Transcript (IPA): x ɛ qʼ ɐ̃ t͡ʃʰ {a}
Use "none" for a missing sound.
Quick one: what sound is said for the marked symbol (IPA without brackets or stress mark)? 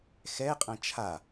a